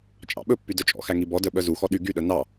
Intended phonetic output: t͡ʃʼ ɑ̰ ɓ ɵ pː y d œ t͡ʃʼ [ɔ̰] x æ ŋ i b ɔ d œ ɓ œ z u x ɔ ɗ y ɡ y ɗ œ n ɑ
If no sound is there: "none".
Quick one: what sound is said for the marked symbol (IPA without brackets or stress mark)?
ɔ̰